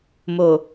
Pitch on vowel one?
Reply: low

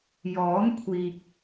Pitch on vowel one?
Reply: rising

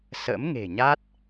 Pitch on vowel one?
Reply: rising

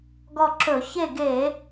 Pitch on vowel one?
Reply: falling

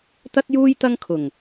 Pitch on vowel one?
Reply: high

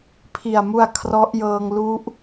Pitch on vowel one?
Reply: low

